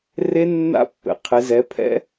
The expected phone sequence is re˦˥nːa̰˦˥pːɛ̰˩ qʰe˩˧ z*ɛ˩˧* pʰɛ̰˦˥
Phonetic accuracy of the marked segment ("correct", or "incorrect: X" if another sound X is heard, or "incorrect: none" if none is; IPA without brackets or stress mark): correct